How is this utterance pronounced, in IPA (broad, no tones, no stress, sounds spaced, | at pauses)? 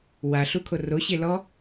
w a ɬ u kʰ o r o ɕ e l ɔ